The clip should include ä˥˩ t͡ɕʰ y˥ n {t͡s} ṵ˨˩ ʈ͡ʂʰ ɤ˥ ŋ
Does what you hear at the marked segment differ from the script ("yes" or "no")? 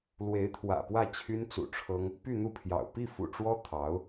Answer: no